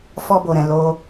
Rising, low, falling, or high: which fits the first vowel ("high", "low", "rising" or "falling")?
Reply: high